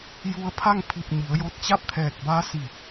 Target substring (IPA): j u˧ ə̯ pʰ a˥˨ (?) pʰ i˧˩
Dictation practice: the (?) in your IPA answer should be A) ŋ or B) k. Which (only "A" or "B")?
A